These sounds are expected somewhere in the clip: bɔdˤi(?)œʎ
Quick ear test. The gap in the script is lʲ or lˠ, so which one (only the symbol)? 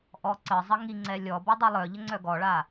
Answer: lˠ